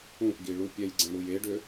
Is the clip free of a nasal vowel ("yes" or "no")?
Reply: no